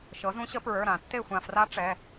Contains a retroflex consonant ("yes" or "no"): yes